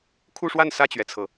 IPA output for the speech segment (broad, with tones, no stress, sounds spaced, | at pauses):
kʰ u˥˧ ʂ w a˥˧ n s ä˥˩ t͡ɕ ɥ ɛ˩ t͡sʰ ɤ˩